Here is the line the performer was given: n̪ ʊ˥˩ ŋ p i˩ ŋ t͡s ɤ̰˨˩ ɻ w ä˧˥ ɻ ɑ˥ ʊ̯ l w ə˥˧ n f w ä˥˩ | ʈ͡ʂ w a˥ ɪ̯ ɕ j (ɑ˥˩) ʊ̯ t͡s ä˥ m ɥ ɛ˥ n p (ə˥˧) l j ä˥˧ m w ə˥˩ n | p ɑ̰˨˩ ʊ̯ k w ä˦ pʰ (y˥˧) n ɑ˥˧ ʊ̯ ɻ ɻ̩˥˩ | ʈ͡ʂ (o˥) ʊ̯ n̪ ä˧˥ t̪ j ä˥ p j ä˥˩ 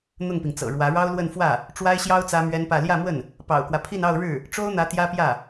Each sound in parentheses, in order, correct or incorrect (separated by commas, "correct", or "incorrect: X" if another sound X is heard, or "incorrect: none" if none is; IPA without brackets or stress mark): incorrect: ɑ˥, incorrect: ä˥˧, incorrect: i˥˧, correct